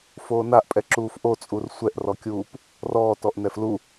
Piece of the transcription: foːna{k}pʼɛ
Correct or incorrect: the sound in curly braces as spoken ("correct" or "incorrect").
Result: incorrect